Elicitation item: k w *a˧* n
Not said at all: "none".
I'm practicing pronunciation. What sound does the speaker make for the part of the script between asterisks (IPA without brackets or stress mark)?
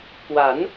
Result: a˩˦